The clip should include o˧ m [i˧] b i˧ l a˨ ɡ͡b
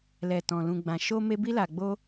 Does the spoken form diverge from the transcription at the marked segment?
yes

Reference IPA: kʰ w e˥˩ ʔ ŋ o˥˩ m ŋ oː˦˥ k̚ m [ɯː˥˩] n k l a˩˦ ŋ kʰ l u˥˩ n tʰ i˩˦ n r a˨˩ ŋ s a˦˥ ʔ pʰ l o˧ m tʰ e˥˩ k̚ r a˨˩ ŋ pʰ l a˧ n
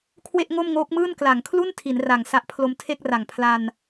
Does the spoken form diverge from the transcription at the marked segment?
no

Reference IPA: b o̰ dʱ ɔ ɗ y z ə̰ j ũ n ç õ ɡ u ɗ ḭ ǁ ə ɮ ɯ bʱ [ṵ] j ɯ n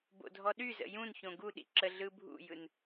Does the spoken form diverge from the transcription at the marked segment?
no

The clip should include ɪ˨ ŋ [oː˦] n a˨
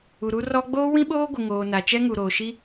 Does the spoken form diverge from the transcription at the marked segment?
yes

